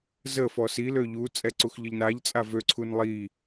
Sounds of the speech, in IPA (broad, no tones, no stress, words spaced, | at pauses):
zə fɔsi løʎu t͡sʼɛǀuxʎəʎnaʎ t͡sʼavø ǀʰunlˠi